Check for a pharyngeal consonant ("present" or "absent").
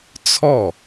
absent